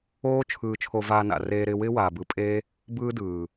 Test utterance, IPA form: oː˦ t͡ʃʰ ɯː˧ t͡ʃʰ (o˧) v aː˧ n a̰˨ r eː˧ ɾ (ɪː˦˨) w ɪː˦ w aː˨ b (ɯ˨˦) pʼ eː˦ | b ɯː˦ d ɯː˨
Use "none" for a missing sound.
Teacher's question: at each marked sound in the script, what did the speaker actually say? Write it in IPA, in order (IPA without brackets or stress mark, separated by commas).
o˧, ɪː˧, ɯ˨˦